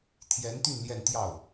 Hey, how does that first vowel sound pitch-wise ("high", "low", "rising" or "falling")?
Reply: rising